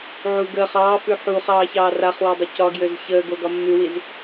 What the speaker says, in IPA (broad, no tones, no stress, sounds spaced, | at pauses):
ʕ u ɡ əː χ ɑː f ʉ ħ u χ ɑː ç ɑː r a χ w ø dˤ ə c ɒ ɡ j ø z ç əː ɡ o ɡ ɒ mː ʉ w i z